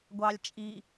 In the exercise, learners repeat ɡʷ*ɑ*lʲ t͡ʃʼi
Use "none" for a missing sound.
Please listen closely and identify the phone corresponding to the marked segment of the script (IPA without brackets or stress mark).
ɑ